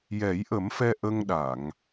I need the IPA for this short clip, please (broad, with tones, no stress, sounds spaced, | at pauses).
j ɛ˨˩˦ j ʔ ə˨˩˦ m f ɛ˧ ʔ ə˧ ŋ ɗ a˨˩˨ ŋ